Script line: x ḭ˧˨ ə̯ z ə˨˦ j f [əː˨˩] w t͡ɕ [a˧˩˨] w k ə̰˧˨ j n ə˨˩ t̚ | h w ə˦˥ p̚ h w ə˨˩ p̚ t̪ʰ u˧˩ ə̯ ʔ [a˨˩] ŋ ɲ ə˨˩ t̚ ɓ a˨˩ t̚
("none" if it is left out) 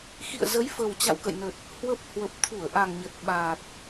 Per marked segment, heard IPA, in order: ə˨˩, a̰˧˨, a˨˩

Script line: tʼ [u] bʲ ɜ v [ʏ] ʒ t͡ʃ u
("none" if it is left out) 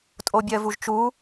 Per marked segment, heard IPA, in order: o, u

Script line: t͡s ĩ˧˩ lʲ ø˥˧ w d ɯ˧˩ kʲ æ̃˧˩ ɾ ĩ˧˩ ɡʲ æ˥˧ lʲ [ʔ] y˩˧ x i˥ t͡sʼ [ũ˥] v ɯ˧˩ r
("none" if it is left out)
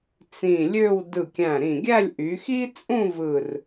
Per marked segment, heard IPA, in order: ʔ, ũ˥˧

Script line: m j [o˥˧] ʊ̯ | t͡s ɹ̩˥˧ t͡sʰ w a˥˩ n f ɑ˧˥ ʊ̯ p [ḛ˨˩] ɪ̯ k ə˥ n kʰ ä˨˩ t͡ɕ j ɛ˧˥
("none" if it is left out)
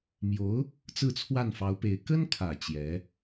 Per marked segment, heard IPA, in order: o˧˥, e˧˥

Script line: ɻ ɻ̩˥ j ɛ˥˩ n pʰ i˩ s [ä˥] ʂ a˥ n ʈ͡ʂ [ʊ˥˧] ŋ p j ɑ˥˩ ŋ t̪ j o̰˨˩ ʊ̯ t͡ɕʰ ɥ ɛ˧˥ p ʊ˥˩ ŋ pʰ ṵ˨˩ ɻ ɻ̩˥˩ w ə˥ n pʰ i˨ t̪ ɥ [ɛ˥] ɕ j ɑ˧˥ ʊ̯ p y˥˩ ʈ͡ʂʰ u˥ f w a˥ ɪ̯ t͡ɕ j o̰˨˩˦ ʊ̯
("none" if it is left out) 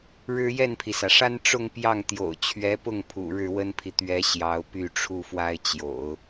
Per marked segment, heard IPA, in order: ä˩, ʊ˥˧, ɛ˧˥

